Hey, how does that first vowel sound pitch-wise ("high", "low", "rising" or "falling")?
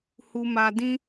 high